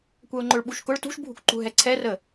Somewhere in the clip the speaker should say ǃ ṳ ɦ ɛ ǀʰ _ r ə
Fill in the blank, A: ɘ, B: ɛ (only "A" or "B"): B